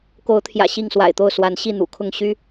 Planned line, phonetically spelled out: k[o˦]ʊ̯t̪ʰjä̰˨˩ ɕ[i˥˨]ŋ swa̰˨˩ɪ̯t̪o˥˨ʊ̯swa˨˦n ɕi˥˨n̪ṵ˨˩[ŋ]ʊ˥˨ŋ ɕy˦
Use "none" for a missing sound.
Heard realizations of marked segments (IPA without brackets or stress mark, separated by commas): o˨˦, i˥˨, kʰ